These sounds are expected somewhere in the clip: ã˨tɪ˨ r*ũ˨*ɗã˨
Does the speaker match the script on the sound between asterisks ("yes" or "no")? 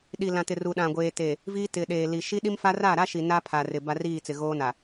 no